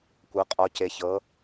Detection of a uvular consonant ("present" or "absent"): present